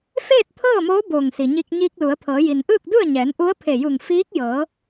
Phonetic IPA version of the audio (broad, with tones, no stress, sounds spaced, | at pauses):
f eː˥˨ t̚ t̪ʰ ɤː˥˨ m oː˧˥ b oː˧˩ ŋ s i˩ ɲ i˧ k̚ ɲ iː˧ k̚ l u˩˧ ə̯ pʰ ɤː˩˧ j i˩ n ʔ ɯː˥˨ k̚ d u˥˨ ə̯ ɲ ɛː˩˧ n ʔ u˧˥ ə̯ pʰ e˧˩ j u˧˩ ŋ f iː˧˥ k̚ j ɤː˩˧